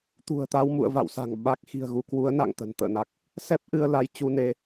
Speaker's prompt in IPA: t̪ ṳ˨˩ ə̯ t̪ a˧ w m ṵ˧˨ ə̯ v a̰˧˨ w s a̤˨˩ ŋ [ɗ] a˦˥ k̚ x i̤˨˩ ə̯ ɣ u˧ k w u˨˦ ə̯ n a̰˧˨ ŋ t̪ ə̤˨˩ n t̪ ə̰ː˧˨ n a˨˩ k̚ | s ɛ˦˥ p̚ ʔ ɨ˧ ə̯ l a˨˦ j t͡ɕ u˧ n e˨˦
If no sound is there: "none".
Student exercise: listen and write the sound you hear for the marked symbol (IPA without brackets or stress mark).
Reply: ɓ